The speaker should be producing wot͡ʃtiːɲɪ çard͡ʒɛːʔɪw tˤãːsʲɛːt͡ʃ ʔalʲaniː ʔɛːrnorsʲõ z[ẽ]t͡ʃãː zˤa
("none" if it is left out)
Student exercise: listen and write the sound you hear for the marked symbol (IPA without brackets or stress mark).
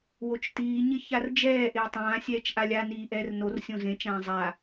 ẽ